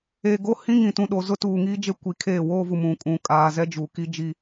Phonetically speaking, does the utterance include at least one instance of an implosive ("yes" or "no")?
yes